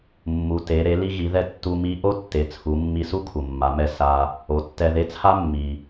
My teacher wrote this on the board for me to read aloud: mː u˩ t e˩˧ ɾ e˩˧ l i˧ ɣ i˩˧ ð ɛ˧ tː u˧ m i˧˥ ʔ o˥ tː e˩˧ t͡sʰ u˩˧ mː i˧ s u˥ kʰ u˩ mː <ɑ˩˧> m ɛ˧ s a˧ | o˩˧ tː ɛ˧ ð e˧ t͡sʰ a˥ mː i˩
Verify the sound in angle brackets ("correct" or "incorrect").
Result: incorrect